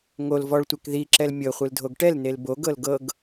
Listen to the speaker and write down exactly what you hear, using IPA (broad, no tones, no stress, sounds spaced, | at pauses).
ŋ o l v ɔ ɭ tʷ e k ð i ǁ ɛ l mʲ ɤ χʷ ɯ l dʱ o ɡ ʈ ɛ l n e l b o ɡ ɤ l ɡ ɤ ɡ